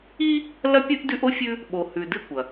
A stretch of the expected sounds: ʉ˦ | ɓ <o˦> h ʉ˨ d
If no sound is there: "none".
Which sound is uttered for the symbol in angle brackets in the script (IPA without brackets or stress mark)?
o˨